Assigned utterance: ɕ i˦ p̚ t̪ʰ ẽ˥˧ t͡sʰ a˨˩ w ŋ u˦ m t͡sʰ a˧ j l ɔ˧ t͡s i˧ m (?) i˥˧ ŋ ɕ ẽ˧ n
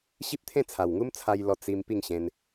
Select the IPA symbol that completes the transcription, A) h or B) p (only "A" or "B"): B